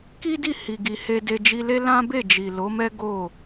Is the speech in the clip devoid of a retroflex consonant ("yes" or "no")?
yes